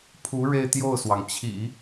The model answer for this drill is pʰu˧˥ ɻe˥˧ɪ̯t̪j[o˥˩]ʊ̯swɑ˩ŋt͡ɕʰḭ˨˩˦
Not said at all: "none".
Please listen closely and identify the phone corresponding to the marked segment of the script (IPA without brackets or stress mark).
o˥˩